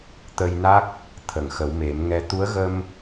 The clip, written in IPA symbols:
t̪ ə˧ j n a˦˥ k̚ | t̪ʰ ə˨˩˨ ŋ x ə˨˩˦ w m e˨˩˦ m ŋ ɛ˧ t̪ u˧˥ ə̯ ɣ ə˧ m

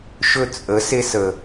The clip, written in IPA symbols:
ʃ ɵ˧ t͡sʼ ə˨˦ s e˧ s ə˨

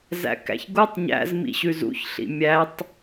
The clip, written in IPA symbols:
z æ̰ k æ̰ ç ɡ u tˤ ɲ æ̰ z m ḭ ɕ ʉ z ṵ ç ɬ ḭ mʲ æ tˤ

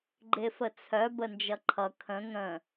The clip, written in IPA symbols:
ɡ͡ǃ e f ə t͡sʰ œ b ə n d͡ʒ ʌ ǃʰ ʌ kʰ ə̃ ŋ ə̃

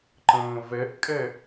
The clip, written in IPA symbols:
ǃ ə̃ː v ɛ ʔ kʼ ɛ

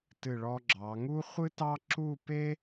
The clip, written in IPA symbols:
t ɨ˧˩ ɭ ɔ˧ ɡ͡ǁ ɑ˩˧ ŋ u˥ χʷ ɨ˥ t ɑ˥ ǁ u˥˧ p e˥

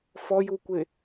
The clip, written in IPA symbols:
f ɔ j u kʷ e

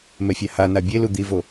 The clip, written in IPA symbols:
m ɛ fʲ a h a n a bʲ e l u d̪ i v o

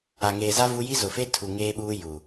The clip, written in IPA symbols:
a˨ ŋ eː˨ z a˦ v u˦ j i˦ z ʊ˨ f e˦ tʰ u˨ ŋ eː˦ ɓ uː˦ j u˨

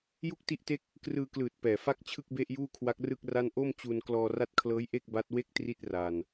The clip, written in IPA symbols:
j u˥˩ k̚ t i˦˥ ʔ t e˦˥ k̚ | k r ɯː˧ k l ɯː˨˩ t̚ p ɛː˨˩ f a˥˩ k̚ t͡ɕʰ ɯ˥˩ k̚ b e˥˩ ʔ j uː˥˩ kʰ w a˦˥ k̚ r ɯ˥˩ k̚ r a˥˩ n ʔ o˥˩ m t͡ɕ u˧ n k l ɔː˧ r a˦˥ t̚ kʰ l ɤː˦˥ j ʔ e˥˩ k̚ b a˦˥ t̚ w e˥˩ k̚ t r i˦˥ t̚ r aː˧ n

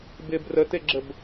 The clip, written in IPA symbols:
b ɪ b r ə t e ɡ͡ǁ ə b

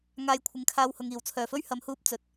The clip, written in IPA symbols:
ŋ aː˧ j kʷʰ ɪ˨ ŋ kʰ aː˧ w h ʊ˨ ŋ iː˨˩ w t͡sʰ œː˨˩ f ɵ˥ ɥ h ɐ˨˧ m h uː˧ p̚ t͡s ɵ˨ t̚

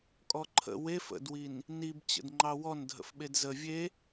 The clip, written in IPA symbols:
kʼ ɔ ǃʰ ə̰ w e f ə̰ d w i n | n i b t͡ɕ ə̰ d ŋ͡ǃ ɑ w ɔ n dʱ ə̰ f ɓ e d z ə vʲ e

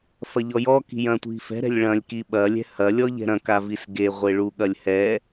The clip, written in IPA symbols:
f ɐ ʎ ɔ j ɔ k i̤ j ɐ̃ tʷ i̤ f ɛ̤ ɾ ɛ̤ lʲ ɭ ɐ̃ lʲ k i ɓ ɐ lʲ ɛ̤ h ɐ lʲ ɔ ʎ ɛ̤ ɾ ɐ̃ k a v i s ɡ e ʁʷ e ɭ u ɠ ɐ lʲ h ɛ

